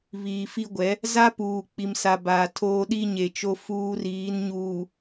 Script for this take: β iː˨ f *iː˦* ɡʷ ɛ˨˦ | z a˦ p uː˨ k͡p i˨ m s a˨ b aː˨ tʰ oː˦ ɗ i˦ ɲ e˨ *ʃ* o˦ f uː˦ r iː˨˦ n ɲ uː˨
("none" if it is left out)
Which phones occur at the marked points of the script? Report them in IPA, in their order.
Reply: i˦, t͡ʃ

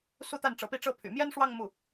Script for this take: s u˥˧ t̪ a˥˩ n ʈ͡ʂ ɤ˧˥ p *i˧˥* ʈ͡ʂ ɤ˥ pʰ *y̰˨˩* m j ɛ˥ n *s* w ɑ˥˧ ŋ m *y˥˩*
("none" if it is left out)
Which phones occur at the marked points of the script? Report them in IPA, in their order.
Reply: i˥˩, y̰˨˩, ʂ, u˥˩

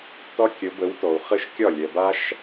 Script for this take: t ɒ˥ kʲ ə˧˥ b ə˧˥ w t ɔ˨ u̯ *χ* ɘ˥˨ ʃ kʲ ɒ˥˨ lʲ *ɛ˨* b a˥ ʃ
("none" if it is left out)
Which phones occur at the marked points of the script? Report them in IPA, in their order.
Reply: χ, ɛ˨

